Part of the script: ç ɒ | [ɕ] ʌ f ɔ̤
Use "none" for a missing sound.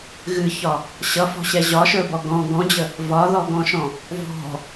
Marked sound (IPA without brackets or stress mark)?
ɕ